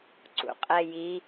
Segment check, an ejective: present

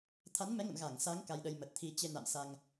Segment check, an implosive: present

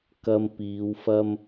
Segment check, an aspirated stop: absent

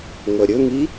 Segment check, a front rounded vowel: present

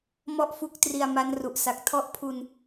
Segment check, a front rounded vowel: absent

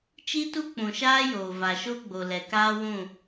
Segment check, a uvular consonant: absent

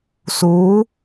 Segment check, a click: absent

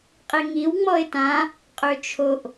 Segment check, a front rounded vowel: present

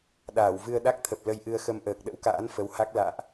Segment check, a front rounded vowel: absent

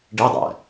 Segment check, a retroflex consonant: present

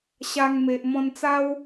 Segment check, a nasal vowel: present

